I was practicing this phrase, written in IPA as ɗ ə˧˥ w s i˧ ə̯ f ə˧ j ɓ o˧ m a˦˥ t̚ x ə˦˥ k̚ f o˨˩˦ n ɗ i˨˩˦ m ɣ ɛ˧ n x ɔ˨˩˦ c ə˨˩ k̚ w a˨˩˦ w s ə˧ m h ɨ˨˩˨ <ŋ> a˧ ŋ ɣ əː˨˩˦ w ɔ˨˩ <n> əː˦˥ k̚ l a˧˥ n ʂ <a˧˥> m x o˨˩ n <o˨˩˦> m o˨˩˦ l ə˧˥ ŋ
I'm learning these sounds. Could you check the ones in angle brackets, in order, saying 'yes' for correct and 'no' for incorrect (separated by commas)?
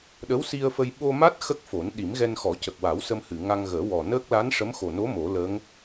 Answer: yes, yes, no, no